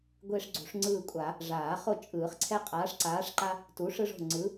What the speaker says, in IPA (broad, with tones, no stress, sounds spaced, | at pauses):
ɡʷ e˦ ʂ ɡ͡ǀ ṳ˨˩˦ ʂ ŋ͡ǀ ɯː˦˨ kʷʼ a˨˩˦ | ʐ aː˨˩˦ χ o˦˨ t͡ʃʼ ɯː˨˩˦ χ ǀʰ ɛ˦ qʼ aː˨˥ ʂ ǀ aː˨˥ ʂ ǃ a˦ | t u˨˥ ʂ ɯ˦ ʐ o̤˦˨ ŋ͡ǀ ɯ˨˥